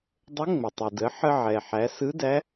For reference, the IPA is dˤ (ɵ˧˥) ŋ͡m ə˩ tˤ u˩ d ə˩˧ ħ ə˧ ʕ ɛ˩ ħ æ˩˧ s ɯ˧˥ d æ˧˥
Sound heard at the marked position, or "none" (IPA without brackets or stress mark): ə˧˥